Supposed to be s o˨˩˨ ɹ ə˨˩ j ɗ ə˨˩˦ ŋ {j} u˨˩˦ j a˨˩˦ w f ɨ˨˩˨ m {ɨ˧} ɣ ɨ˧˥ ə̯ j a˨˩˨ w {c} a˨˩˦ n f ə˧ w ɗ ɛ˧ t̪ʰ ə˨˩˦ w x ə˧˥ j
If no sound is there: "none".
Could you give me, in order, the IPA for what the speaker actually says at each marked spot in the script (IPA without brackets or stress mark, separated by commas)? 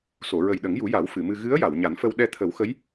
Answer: j, ɨ˧, ɲ